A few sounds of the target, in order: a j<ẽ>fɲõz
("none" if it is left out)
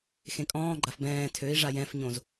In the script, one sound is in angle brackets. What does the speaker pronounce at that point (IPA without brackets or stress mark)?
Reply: ɛ̃